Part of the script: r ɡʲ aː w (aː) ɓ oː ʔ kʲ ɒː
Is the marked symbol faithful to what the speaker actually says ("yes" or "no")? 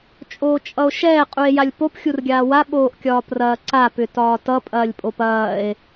no